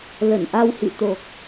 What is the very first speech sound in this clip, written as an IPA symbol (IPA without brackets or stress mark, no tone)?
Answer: l